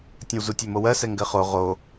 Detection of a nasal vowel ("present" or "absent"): present